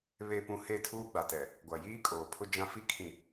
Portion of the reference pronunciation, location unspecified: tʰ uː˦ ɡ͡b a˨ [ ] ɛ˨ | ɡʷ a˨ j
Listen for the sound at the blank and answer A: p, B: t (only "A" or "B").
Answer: B